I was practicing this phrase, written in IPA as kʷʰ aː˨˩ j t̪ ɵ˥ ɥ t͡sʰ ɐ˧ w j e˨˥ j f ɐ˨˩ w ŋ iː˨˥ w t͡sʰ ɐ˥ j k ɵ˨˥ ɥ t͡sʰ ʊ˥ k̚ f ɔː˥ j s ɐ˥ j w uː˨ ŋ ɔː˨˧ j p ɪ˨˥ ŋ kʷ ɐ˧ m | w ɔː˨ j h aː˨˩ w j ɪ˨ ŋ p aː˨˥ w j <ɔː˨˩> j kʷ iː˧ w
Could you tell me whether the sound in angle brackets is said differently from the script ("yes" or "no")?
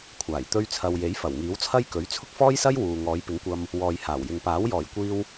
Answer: no